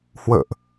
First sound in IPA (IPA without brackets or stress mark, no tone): h